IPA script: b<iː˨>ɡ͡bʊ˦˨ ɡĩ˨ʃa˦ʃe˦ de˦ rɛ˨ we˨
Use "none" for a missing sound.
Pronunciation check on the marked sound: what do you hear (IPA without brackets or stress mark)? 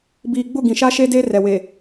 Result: iː˨